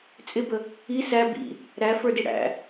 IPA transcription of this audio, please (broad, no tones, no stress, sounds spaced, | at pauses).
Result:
t͡sʼ ɪ b ə | i s æ b ḭ | ɾ æ f ə˞ d i ɽ æ̰